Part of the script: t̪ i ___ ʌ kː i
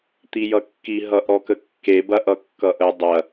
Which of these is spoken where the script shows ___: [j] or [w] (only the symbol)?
j